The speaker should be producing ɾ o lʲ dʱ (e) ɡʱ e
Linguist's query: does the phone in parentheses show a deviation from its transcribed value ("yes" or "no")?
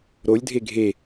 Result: no